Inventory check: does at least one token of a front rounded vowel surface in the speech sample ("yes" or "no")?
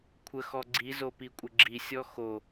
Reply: no